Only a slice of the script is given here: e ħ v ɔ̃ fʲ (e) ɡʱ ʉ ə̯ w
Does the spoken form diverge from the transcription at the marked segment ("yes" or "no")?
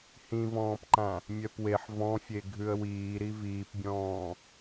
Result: no